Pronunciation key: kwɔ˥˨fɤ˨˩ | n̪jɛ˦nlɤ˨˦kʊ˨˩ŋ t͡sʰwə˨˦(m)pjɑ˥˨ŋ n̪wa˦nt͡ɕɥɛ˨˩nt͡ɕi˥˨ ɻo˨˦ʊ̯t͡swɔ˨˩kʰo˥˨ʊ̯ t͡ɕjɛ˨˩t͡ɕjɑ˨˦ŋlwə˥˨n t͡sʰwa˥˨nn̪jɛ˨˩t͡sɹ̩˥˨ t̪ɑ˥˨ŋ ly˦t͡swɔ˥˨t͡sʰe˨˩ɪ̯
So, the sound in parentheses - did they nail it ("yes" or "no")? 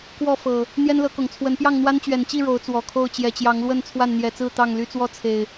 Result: no